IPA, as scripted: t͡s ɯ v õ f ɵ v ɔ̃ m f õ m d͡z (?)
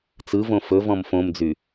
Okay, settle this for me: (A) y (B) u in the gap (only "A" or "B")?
A